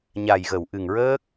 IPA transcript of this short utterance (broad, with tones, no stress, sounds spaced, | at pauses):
ɲ a˨˩ j ɣ ə˨˩˨ w ʔ ɨ˨˩ ŋ ɹ əː˦˥ k̚